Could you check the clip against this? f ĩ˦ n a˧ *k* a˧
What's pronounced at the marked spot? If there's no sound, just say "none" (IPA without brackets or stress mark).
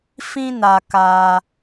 k